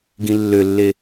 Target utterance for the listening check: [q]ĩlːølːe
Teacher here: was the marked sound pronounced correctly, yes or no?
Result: no